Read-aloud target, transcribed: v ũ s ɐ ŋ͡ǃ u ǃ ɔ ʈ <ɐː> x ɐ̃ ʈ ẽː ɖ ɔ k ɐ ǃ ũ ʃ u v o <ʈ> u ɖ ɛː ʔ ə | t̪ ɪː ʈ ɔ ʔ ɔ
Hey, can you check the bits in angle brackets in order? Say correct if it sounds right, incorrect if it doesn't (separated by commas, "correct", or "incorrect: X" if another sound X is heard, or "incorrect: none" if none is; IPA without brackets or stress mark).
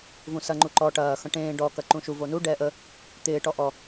correct, incorrect: n